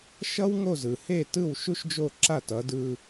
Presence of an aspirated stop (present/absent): absent